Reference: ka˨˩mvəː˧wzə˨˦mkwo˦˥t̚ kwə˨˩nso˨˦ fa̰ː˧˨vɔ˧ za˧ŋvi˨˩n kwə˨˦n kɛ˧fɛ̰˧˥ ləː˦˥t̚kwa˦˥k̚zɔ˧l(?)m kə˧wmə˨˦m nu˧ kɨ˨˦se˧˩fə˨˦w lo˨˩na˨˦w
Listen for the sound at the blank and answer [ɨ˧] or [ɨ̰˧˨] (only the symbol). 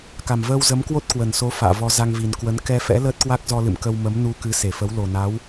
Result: ɨ̰˧˨